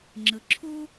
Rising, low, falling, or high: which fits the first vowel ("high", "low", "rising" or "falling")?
low